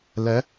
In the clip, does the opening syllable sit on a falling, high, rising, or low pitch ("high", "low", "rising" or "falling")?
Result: rising